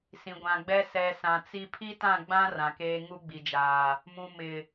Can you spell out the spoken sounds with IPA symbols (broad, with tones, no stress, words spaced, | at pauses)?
sĩ˨ɡʷã˨ɡ͡bɛ˦ sɛ˨ sã˨t͡si˦ pʰi˦tã˦˨ɡ͡bã˦ rã˨keː˦ ŋu˦ɡ͡bi˨d͡ʒaː˨ | mũ˨ mɪ˨